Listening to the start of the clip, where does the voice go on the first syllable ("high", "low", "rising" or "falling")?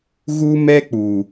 high